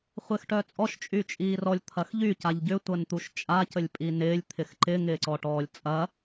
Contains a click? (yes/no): yes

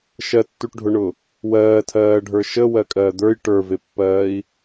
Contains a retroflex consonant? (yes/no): yes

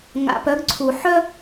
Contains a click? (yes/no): yes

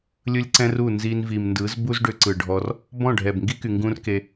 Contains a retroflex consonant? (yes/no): yes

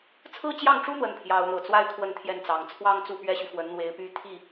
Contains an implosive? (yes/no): no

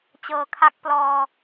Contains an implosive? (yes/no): no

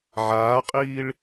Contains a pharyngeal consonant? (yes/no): yes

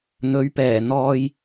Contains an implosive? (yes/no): no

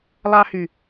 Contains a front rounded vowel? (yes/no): yes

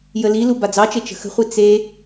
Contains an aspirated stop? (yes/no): no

